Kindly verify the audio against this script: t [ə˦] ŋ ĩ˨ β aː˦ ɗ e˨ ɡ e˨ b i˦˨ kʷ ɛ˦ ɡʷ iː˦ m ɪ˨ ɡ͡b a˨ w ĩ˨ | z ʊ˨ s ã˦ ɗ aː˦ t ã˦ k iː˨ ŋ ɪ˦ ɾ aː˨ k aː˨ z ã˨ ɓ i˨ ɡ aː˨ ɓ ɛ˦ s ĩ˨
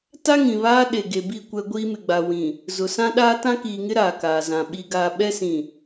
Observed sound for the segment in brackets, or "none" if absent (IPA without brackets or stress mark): a˦